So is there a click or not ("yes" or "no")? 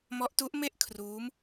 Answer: no